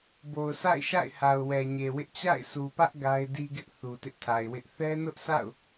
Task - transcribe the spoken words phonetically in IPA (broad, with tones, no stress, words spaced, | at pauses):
bo˨ʊ̯sa̰˦˨ɪ̯ʃa̰˦˨ɪ̯ha˨ʊ̯ wɛ˨ɲe˨wɪ˦ʔ t͡ɕa̰˦˨ɪ̯su˨pä˦ʔ ɡa˦ɪ̯di˦ɡɪ˦ʔ θu˨tɪ˦ʔtʰa˨ɪ̯wɪ˦ʔ θɛ˦ nʊ˦ʔsʰa̰˦˨ʊ̯